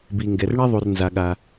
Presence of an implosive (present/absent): present